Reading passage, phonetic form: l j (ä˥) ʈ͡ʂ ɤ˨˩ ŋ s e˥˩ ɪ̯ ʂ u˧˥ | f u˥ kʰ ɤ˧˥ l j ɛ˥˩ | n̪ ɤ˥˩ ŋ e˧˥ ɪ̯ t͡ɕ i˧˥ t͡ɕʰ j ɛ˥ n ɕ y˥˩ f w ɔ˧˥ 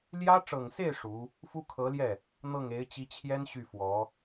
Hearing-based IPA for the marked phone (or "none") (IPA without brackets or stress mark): ä˥